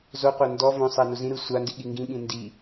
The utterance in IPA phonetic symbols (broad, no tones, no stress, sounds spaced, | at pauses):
z o qʷ a n d ɔ v õ sˤ ɛ n u z ĩ ɾ ɯ sʷ a n d i ɠ i ŋ ɡ ĩ ɠ ĩ n d i